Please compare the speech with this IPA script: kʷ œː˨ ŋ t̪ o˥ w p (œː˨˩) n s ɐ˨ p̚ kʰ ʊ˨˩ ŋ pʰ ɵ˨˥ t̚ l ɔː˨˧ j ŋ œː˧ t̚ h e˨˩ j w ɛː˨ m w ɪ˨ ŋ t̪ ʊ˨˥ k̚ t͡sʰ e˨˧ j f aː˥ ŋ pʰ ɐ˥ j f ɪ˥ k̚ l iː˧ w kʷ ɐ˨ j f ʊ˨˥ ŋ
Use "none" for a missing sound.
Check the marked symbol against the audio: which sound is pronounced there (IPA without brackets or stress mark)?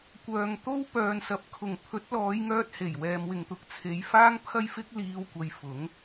œː˨